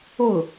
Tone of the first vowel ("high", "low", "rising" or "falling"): falling